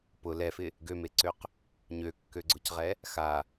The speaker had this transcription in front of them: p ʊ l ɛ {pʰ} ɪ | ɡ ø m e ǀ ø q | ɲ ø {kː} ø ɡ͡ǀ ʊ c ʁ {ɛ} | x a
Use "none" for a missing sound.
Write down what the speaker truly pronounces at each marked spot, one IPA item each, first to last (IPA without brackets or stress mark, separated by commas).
f, kː, ɛ